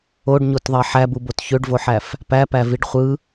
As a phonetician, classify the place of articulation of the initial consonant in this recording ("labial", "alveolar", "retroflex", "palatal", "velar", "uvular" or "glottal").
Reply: retroflex